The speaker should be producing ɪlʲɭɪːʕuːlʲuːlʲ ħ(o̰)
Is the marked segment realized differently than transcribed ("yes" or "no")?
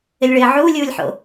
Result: no